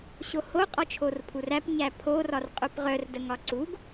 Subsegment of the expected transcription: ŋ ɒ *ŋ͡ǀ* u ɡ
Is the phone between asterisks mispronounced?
yes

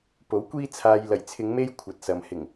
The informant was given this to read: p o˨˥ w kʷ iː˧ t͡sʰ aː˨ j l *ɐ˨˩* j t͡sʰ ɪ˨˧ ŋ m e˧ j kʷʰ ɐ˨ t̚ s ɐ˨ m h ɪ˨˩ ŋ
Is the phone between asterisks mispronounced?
no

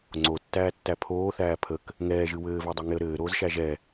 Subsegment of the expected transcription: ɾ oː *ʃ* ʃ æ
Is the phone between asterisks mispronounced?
yes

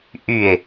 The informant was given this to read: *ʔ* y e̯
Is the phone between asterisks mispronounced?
no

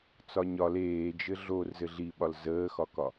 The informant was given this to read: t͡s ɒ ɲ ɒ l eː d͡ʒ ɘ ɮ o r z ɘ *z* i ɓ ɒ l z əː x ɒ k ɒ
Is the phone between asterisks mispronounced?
yes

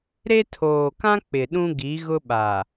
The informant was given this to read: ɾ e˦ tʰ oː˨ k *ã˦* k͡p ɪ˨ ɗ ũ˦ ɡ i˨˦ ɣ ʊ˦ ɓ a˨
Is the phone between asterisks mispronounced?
no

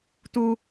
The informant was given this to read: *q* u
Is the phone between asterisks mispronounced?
yes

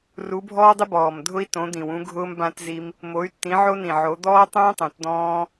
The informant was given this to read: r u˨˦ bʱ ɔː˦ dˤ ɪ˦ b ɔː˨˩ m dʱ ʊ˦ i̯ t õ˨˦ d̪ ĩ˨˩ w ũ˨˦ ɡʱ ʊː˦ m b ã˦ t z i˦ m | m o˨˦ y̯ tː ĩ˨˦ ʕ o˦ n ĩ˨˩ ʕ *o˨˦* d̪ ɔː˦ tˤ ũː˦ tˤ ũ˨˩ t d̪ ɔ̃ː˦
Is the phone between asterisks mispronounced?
no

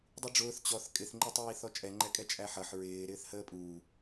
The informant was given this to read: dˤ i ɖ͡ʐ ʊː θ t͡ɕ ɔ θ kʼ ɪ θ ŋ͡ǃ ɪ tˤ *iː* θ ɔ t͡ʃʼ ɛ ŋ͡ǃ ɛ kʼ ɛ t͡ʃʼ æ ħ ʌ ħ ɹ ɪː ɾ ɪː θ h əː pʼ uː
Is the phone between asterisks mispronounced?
no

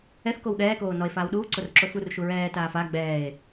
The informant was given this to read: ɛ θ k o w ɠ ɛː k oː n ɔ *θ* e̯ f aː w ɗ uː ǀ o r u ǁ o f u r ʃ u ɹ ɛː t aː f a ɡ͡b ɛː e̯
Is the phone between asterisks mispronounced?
yes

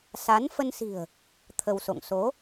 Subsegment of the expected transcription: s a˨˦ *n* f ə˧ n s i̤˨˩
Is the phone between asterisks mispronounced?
no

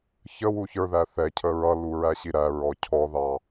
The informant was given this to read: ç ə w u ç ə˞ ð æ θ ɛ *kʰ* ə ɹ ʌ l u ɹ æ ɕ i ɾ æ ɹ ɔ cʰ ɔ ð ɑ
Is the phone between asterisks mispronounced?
yes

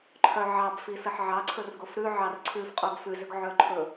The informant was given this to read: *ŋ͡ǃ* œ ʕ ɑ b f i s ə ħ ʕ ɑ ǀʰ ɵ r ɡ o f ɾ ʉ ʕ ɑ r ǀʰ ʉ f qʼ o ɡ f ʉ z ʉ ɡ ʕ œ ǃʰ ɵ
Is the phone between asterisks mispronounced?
yes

